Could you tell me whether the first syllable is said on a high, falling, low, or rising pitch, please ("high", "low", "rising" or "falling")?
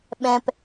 low